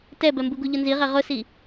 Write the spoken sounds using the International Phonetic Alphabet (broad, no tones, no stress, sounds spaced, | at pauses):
t ɛ b ɛ m b u ɡ u ʎ ʊ n z i ʁ e ʁ ʊ s i